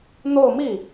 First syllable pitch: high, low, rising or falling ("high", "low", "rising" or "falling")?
falling